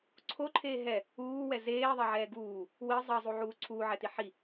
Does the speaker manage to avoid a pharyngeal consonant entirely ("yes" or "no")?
no